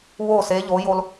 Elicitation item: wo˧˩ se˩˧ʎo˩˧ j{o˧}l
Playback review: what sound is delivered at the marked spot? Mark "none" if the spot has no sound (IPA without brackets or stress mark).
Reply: o˧